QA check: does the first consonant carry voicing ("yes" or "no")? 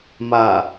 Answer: yes